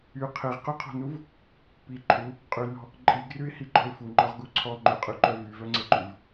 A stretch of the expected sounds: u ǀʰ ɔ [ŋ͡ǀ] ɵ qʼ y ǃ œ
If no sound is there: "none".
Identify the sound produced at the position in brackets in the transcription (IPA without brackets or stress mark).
ŋ͡ǃ